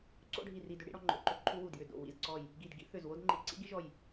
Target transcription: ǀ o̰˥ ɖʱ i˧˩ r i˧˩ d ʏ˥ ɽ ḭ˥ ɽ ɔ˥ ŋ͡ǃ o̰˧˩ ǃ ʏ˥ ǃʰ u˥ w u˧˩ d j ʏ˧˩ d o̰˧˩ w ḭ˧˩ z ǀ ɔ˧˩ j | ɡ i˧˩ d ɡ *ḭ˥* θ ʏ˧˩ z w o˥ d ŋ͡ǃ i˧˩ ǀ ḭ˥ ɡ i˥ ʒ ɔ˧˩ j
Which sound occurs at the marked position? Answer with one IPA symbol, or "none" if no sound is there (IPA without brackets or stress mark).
ḭ˥